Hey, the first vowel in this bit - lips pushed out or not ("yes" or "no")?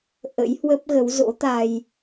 no